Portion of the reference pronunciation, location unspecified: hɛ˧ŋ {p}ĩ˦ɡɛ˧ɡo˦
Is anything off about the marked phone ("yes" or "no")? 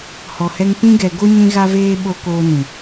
no